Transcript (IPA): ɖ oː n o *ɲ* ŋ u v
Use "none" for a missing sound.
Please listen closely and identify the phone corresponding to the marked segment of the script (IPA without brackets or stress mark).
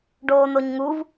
ɲ